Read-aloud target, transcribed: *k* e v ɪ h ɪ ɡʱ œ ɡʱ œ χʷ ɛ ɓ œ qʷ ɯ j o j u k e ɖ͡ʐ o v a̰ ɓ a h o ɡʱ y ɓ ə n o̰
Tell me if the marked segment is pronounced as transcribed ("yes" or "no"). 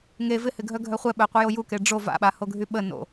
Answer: no